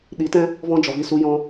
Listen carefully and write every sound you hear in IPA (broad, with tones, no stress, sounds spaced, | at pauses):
ɗ i˨˦ t ɛ̃˦ | v ɔ̃˦ d͡ʒ ɔ˨ v i˦˨ s u˦ j ɔ̃˦